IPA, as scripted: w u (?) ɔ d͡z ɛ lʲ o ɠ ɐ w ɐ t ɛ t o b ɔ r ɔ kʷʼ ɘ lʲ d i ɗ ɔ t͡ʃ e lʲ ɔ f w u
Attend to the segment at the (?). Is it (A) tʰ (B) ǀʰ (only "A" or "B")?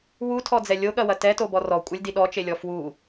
A